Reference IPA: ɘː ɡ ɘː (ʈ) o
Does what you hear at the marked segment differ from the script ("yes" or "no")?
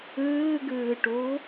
no